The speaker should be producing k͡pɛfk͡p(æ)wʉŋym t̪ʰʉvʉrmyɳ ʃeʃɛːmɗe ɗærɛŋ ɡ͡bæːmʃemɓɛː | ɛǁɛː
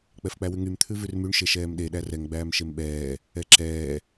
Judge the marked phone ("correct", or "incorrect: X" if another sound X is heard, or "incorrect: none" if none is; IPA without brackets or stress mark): correct